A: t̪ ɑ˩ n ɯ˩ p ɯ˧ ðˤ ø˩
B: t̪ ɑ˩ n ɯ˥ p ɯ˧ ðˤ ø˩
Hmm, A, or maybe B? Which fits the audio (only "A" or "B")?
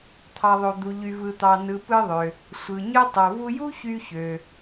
A